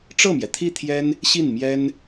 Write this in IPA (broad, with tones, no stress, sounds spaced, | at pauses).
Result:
ʈ͡ʂ ɤ˥˩ m j ɛ˩ t̪ʰ i˥˩ t̪ʰ j ɛ˥ n | ɕ i˥˩ n m j ɛ˥ n